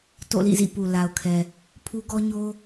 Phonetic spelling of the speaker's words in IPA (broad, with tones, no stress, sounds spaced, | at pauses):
t o̰˦˨ l ḭ˦˨ z ḭ˦˨ p u˨ l a˨ ʊ̯ kʰ ɛ˨ | pʰ u˦ ɡ ɔ˦ ɲ o˦